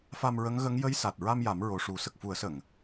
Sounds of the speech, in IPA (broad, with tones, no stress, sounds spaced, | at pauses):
f a˧ m ɹ ə˧˥ ŋ ɣ ə˧˥ ŋ j ə˧˥ j s a˨˩ t̚ ɹ a˧ m j a˨˩˦ m ɹ o˨˩ ʂ u˨˩˦ s ə˨˩ k̚ f u˨˩˦ ə̯ s ə˨˩˨ ŋ